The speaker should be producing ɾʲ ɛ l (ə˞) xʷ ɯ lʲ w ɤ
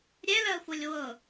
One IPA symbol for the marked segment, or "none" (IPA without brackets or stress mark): ɜ